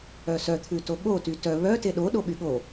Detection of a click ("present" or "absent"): absent